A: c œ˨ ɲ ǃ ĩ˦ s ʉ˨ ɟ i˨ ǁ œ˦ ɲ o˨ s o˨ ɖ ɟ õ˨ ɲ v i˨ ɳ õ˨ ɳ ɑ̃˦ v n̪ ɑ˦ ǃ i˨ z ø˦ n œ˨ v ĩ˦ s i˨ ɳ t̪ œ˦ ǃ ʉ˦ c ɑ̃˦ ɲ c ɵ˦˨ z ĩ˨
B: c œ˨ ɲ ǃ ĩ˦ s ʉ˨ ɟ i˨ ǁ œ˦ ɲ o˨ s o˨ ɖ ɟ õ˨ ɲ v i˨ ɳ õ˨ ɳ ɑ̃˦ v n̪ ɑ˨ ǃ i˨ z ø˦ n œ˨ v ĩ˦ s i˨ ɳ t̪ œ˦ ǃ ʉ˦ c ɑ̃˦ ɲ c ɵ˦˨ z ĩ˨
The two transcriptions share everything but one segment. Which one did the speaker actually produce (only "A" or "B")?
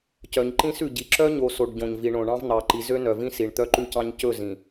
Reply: B